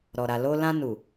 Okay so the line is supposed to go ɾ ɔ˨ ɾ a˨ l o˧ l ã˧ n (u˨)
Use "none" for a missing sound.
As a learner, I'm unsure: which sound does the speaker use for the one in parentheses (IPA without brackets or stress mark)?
u˨